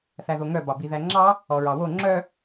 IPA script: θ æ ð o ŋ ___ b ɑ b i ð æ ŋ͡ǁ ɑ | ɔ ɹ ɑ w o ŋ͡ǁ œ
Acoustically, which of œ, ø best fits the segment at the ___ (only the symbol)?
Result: œ